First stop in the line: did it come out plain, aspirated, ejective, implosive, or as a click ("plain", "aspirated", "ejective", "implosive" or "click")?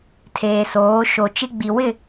aspirated